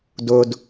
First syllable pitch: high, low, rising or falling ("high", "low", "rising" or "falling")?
low